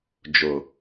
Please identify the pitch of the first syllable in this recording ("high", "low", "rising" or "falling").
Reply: low